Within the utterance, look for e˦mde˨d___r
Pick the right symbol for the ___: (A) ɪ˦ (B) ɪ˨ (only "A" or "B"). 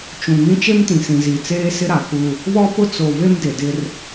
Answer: A